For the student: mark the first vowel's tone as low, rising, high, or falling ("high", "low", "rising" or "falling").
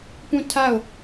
falling